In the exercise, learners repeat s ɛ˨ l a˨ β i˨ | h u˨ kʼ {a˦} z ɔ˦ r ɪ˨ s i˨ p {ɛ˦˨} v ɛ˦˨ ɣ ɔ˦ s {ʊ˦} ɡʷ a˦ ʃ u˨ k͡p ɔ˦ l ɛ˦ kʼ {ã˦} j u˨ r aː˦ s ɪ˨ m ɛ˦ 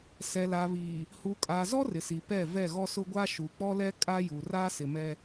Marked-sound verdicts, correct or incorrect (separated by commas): incorrect, correct, correct, incorrect